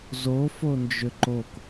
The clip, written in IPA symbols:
zo fond͡ʒʏǃok

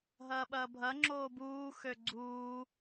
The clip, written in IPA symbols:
ɦɐːɓɐːbʱɐŋ͡ǁoː buːxø ɡ͡ǀuː

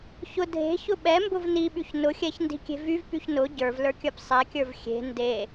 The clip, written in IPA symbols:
çʊ dʱe̤çʊ ɓɛmbʊv niɓyç nʊxʲɛçndi̤kʲe̤ vyvpyç nʊ ɟə˞vlə˞kʲə˞p sˤɛkʲə˞v xʲe̤ nde

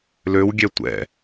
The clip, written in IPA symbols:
løwɡʲɛ tʷɛ̰

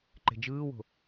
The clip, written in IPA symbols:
ǃe̤d͡ʒɯːwo̤

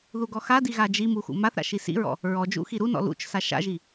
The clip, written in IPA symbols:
ðuɡɔxadi ɣad͡ʒimu xṵmaθɾa̰ ʃisḭɹɔ̰ | ɹɔd͡ʒṵ xiɾunɔ̰ lṵt͡ʃsa ʃa̰ʒi

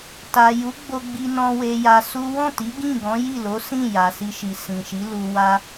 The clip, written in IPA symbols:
ta˨ju˨˦ ɡ͡bo˦ɡ͡bi˦nɔ̃˦ we˧ja˧su˦ wɔ̃˦˨ti˨˦ ɡĩ˦˨ɡɔ̃˨˦ ji˦˨lo˨˦ sĩ˦˨ ja˨si˧ʃi˨ sĩ˨ʃi˨˦ lu˧wa˦

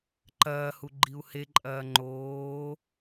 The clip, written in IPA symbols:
ǃɐːhu ɡ͡ǃiu̯heǃʼɐː ŋ͡ǃoː

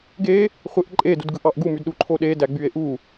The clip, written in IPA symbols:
ɡe | χʷeʔǃʼe dudɡɯʔɑʔɡu mydɗu ǃʰoɗe dæɡ͡bye̯ʔu

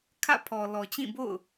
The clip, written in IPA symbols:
kʰä̰˦˨pʰɔ˨ lɔ˨t͡ɕĩ˦˨bo̰˦˨ʊ̯

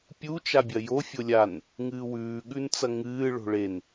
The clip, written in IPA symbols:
pʲut͡ʃabʲɐ jo fʲolʲan | ŋɨːwʉːɠʉnt͡sɐ ŋɨː ɭo̤ɭen

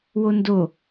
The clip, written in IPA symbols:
wondo

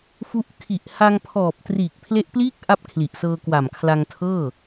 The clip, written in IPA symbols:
fu˦˥ʔ kʰi˨˩ʔha˧ŋpʰɔː˨˩p̚triː˨˩k̚ pʰle˦˥ʔpliː˥˩k̚ ʔa˥˩p̚kʰli˨˩ʔsɤː˧kwa˨˩m kʰla˧ŋtʰɤː˥˩

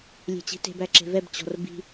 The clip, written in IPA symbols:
lʲe̤t͡ɕi̤te̤b æǁe̤vɛb t͡ɕɔ̤rbi̤

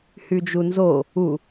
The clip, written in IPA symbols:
hyd͡ʒunzo | u

